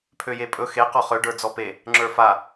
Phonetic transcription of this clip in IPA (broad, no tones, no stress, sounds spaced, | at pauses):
pʰ ø j e pʼ ɵ x e q ɔ χ ø ɖ ə˞ d͡z ɔ p e | ŋ͡ǁ ə˞ f a